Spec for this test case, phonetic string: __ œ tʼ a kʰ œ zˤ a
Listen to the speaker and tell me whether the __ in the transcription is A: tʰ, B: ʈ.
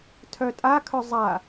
A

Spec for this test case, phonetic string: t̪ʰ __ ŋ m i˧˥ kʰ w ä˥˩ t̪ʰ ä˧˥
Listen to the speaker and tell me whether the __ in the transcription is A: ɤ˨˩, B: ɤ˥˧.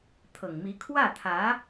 A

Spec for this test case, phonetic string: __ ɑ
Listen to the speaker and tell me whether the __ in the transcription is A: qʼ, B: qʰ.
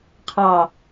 B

